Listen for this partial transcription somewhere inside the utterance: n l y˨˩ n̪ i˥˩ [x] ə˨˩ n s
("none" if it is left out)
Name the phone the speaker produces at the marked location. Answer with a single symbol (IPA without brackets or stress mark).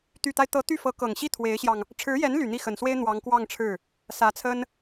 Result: x